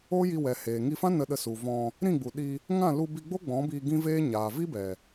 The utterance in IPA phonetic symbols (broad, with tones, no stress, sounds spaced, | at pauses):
o˦ j i˧ w ɛ˨ h eː˨ ŋ i˧ f ã˦ n ə˧ ɗ ə˧ s u˨ v ɔ̃˧ | ɾ ĩ˦˨ ɡ͡b u˨ ɗ i˧ | ŋ ã˦˨ l u˧ b i˧ ɡ͡b o˦ ɡ͡b ɔ̃˨˦ b iː˧ ɡ ĩ˦ v eː˦ ɲ aː˨ v i˦ b ɛ˨